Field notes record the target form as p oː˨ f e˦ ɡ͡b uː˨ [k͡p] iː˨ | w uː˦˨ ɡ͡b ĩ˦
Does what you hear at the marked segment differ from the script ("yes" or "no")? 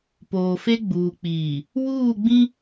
no